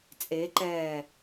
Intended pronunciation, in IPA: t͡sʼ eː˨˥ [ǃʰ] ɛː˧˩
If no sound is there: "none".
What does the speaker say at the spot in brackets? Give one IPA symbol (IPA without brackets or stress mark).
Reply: ǃ